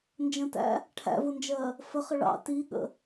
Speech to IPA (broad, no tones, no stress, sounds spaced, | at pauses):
n d͡ʒ ə̃ t æ̰ | ʈʰ æ̰ v ʊ n d͡ʒ ɜ | f ə χ ə ɭ ɑ̰ t i ɠ ə̰